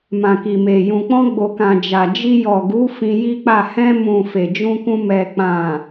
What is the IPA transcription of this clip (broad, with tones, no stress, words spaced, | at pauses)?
mã˨ki˨me˨ jũ˨k͡pɔ̃˧ɡ͡bo˨kã˨ d͡ʒa˨ d͡ʒi˧jɔ˨ɡu˨˦ fĩ˧ji˦k͡pa˦˨ hɛ̃˧mũ˨ fe˨d͡ʒũ˧kũ˧ mɛ˨k͡pã˨